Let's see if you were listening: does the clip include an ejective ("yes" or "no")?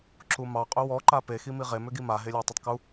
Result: yes